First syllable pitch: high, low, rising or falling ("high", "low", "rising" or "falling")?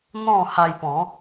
falling